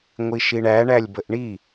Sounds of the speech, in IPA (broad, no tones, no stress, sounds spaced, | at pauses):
ŋʷ i ʃ i ɳ æ ɳ æ lʲ b ə ʔ ɳ i